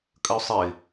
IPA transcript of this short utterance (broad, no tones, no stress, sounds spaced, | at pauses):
kʼ ə ʊ̯ sˤ ɘ ɪ̯